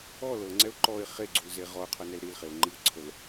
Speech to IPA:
ɔ lɤŋ͡ǀɛʊ̯ ǃɔɪ̯ χeɡ͡ǀulze ʁɔʊ̯qʰɤnɛl ɾilχeʊ̯ ŋ͡ǃiʊ̯ǀʰəl

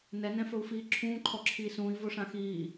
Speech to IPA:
nɛ nɛ̃fɵu̯fiːǁʰũː ǃʰɔǁʰiːsũːi̯ voʂãxiː

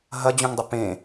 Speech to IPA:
ɦɐd͡ʑũŋdˤə pẽ

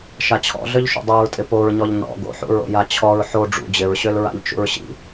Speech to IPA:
ʃat͡ɕʰɔ̰ɮøʎ ʃṵdˤuɹtʼɪ poɹɲɔʎ nɔ̰ ɡo̰ħṵɹo̰ jat͡ɕʰɔɹ ħo ɖ͡ʐṵ d͡ʑɪɹɕøl ɹa̰ʎt͡ʃṵɹɕḭ

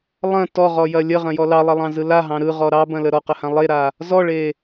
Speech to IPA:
lˠɐ̃ tɔʁɔjɐ lʲəʁɐ̃jɔ lɑlˠɐlˠɑ̃zɯ laɦɑ̃ ɾɯʁɔ ɾɑbɐ̃lə ɾɔqəhã lˠeɾa | zɔɭe

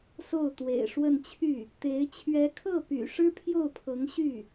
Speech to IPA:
so˥˩ʊ̯t̪wḛ˨˩ɪ̯ ʂwə˥˧n t͡ɕʰy˥˩ | t̪e˧˥ɪ̯ t͡ɕʰɥɛ˧˥kʰɤ˥˩py̰˨˩ ʂɻ̩˥pʰjo˥˩ʊ̯pʰɤ˧˥ŋ ɕy˥˩

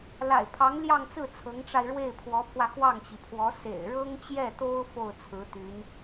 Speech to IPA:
la̰˨˩ɪ̯pʰɑ˧˥ŋljɑ˥˧ŋt͡sɹ̩˥˩ t͡sʰɤ˧˥ŋʈ͡ʂa˧ɪ̯ ɻwe˥˩ɪ̯pʰwɔ˧˥pʰwä˧ xwɑ˥˩ŋt͡ɕi˩pʰwɔ˧˥ sḛ˨˩ɪ̯ɻɤ˥ŋt͡ɕjɛ˥˩t̪o˥ʊ̯ fo˥˩ʊ̯t͡sʰɹ̩˧˥t̪y˧˥n

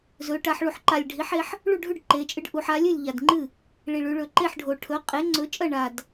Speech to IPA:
zɵ˩˧ ʈa˩˧ħɭu˨˩ħǃa˨˩lʲɖʱi˩˥ħ e˩˧ħ | ɭu˥˩ɖʱʉ˥˩ɖǃe˩˧t͡ʃʼɨ˩˥ɖ ʔu˩˧ħa˩˥lʲʉ˥˩lʲ ʎa˨˩dŋ͡ǃɨ˥˩ | ɭi˨˩ɭʉ˩˧ ɭɵ˨˩ǃe˥˩ħɖʱo˨˩ ʈʰɵ˩˥ qʼe˩˥ŋ͡ǀɵ˩˥ t͡ʃʼɐ˥˩ɳa˨˩d

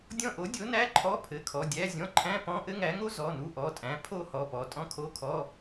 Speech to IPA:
dʲɔ̃˦˨ʔo˩˥ dʲo˩˥næ˧˥˧ ǃʰɔ˧˥˧pʰɘ˩˧˩kʰɔ˩˧˩ dʲæ˧˥˧zʲɔ̃˧˥˧ ǃʰæ̃˧˥˧pɔ̃˧˥˧ ʔɘ˥ŋæ˩˥ŋo˥ zɔ˩˧˩nu˦˨ʔɔ˩˧˩tʼæ̃˩˥ pʰo˦˨ hɔ˩˧˩pɔ˩˧˩ tʼɔ̃˥kʰo˧˥˧kʰɔ˧˥˧

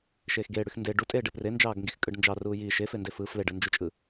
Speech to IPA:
ʃeːxɡeːɽyx nde ɖutʼeːɖ epre nd͡ʒɑːɡŋɡixkʼɯɖnd͡ʒɑ ruːji ʃefende fɯ fleɖɯnd͡ʒut͡ʃʼɯ

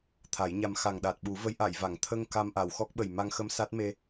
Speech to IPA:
t̪ʰa˨˩˦jɲa˧m xa˨˩ŋɗa˨˩t̚ɓu˨˩˦və˧˥j ʔa˨˩˨jva˨˩˨ŋ t̪ʰə˧ŋ ka˧mʔa˨˩˨wxɔ˦˥k̚ɓə˨˩j ma˧ŋxə˧m sa˦˥t̚me˧

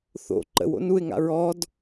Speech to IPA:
θo̰ ǃə̰wo̰n uɪ̯ŋa̰ ɹɔd

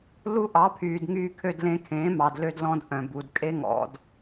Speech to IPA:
lu˥ʔɑ˩˥pʰyː˩d ŋyː˧kʰø˧dlẽ˧kʰẽː˩˥ mɑ˩dlø˧dlɔ̃˧d ʔœ̃˩bu˩dkʼe˥ŋɔ̰˧d

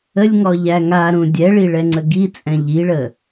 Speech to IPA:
əlʲŋɔʎæ ŋaɾũ dʲɛɭiɭɛŋ͡ǀə ɡit͡sʼɛ̃ ʎiɭə

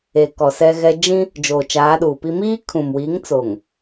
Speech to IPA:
e˨kɔ˨sɛ˦ɣɛ˦ d͡ʒĩ˦ | d͡ʒoː˨t͡ʃaː˨˦ɗuː˨pi˦ miː˦kʰũ˨mwi˨˦ŋt͡so˨ŋ

